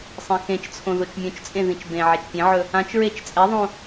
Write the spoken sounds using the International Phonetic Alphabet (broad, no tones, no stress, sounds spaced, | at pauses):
sˤ ẽ x ẽ t͡ʃ t͡sʰ õ ð o t͡ʃ mʲ õ t͡ʃ t͡sʼ ẽ ð ĩ t͡ʃ b ẽ ʕ ɛ t͡ʃ pʲ ẽ ʕ ɵ | ã t͡ʃ ɹ e t͡ʃ t͡sʼ ɛ ðˤ õ